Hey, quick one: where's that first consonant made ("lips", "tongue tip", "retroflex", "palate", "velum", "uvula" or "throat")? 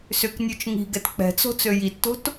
tongue tip